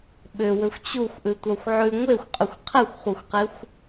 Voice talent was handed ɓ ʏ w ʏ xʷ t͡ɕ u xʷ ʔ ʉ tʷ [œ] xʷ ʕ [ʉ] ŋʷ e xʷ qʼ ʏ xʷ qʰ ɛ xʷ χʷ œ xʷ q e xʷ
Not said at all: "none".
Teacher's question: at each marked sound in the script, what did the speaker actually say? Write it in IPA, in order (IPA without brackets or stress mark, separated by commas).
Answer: œ, ʉ